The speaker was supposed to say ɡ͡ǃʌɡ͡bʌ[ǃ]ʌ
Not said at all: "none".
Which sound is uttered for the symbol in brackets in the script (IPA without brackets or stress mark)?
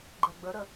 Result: ɾ